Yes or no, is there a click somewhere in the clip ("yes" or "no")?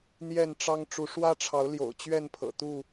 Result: no